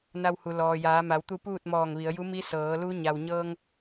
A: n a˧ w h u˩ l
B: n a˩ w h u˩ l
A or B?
A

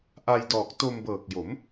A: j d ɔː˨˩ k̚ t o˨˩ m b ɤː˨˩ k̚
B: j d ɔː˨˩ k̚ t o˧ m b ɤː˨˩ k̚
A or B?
B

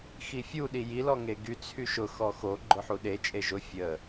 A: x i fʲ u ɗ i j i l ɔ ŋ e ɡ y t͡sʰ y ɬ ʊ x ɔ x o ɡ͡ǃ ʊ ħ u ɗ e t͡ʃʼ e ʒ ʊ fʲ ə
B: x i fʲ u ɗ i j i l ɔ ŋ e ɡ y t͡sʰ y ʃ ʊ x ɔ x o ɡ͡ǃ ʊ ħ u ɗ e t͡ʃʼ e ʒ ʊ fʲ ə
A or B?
B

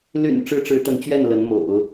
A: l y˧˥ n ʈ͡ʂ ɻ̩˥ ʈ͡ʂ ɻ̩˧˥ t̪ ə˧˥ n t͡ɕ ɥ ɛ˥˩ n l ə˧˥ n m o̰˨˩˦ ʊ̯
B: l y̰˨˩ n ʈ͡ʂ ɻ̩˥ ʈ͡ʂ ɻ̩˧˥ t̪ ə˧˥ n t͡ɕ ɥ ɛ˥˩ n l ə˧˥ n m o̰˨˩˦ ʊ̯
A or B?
B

